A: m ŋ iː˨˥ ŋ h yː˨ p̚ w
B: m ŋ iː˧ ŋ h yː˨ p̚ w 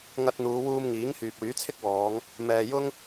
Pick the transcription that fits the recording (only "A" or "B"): A